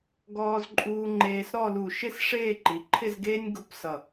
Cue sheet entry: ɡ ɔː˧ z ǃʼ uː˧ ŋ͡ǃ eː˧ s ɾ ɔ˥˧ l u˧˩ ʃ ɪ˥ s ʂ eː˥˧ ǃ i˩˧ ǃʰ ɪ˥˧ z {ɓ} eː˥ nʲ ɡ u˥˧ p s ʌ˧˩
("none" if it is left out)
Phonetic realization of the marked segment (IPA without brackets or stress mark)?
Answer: ɡ